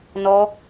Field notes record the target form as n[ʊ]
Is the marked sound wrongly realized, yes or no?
yes